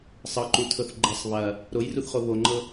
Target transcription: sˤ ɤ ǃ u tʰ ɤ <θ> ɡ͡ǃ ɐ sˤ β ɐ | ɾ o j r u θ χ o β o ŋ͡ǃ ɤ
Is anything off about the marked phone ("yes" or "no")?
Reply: no